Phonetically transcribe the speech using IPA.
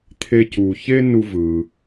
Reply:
t̪ʰ e˧ c uː˩ ç e˥ n u˧ v ɯː˩

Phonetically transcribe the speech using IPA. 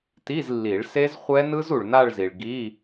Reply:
t i˧˥˧ z lː i˨˩˦ ɭ s e˦˥ z χʷ ɛ˦˥ n ɯ˦˥ z u˨ ɭ n a˥˧ ɭ z i˨ ɭ ɡ i˧˥˧

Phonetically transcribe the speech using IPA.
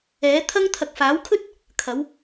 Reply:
ɛː˨˥ t̪ʰ ɐ˥ ŋ t̪ʰ ɐ˧ k̚ f aː˨˥ w kʰ ɵ˥ t̚ | kʰ ɐ˨˧ w

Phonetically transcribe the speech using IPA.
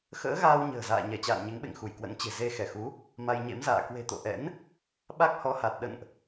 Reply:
x ə̰ː˧˥ ɣ aː˧ w ɲ ə̤ː˨˩ z a̰ː˧˨ ɲ ɛ˧˩ t͡ɕ a̰ː˧˨ n ɲ e˨˦ ŋ ɓ ḛ˧˨ ŋ x u˧˩ j k w ə̰˧˥ n t͡ɕ e̤˨˩ z e˧ x ɛ˧˩ x u˨˦ | m a˧ j ɲ ḛ˧˥ m z a̰ː˧˨ k w e̤˨˩ t̪ o̰˧˨ ʔ ɛ̰˧˥ n | ɓ a˦˥ k̚ h ɔ˨˦ h a˨˩ t̚ ɗ ə̰˧˨ n ʔ

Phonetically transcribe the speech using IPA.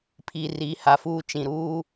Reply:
pʰ i˨ r i˨˦ h a˨ f uː˦ t͡ʃ ĩ˨ ɾ uː˦

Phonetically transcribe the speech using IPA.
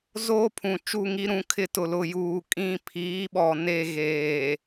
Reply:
z oː˦ pʰ ũ˨ t͡ʃ u˦˨ ŋ i˦ ɾ ũ˨˦ kʰ ɪ˦ t ʊ˨ l ʊ˨ j uː˨ kʼ ĩ˦˨ pʰ iː˨˦ ɓ ɔ˨ n e˦˨ ɣ eː˨

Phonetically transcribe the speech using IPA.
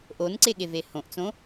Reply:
ʔ o n ǀ e ɠ e v e h õ ʔ t͡s õ

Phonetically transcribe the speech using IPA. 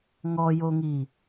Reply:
ŋ ɔ j o ŋ i

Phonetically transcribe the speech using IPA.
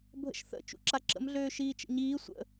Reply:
bʱ ə̰ ʃ θ ə̰ t͡ʃ ṵ ǁ a ǁ ə̰ m ɮ øː ʃ iː t͡ʃ ə̰ ɲ iː sʷ ə̰

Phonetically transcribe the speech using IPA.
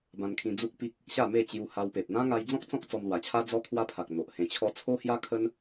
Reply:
b ã˧ n kʰ ĩ˧ d͡z u˦ k̚ p i˦ k̚ | ɕ a˥˧ m e˥˧ t͡ɕ j u˧ h a˧ w p e˨ p̚ n̪ ã˦ ŋ a˧ j d͡z ɔ̃˦ k̚ t͡s ɔ̃˦ k̚ t͡s ɔ˧ m l w a˨˩ t͡ɕʰ a˦ d͡z ɔ˦ kʰ w a˦ pʰ a˨ k̚ n̪ o˨ ʔ h ẽ˧ t͡ɕʰ ɔ˦ t͡sʰ o˦ h j a˦ kʰ ə˦ n

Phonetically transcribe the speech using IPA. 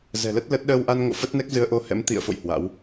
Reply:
z ɛ̤˨˩ l ə˦˥ t̚ l ə˦˥ t̚ ɗ əː˧ w ʔ a˧ n ŋ o̰˧˨ f ə˦˥ t̚ n ɛ˦˥ k̚ z ɨ˧ ə̯ ʔ o˧ h ɛ̰˧˥ m t̪ ḭ˧˨ ə̯ f o̰˧˨ j h w a̰˧˥ w

